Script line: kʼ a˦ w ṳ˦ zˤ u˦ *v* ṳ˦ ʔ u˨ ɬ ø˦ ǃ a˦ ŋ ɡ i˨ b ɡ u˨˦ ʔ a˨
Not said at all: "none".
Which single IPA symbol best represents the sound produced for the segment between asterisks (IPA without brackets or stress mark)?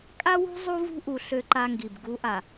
v